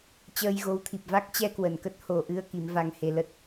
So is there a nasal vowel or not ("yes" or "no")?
no